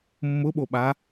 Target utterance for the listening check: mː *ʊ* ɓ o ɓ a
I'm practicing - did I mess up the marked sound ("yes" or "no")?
no